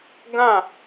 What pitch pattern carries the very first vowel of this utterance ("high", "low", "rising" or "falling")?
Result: falling